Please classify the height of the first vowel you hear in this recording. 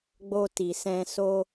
mid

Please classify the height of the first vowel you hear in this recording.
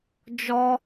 mid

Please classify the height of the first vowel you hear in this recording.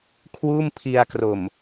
high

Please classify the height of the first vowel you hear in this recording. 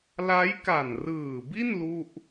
low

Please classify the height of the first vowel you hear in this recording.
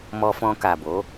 mid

